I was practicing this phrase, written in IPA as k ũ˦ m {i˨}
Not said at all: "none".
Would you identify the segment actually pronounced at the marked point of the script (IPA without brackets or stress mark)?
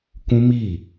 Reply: i˦˨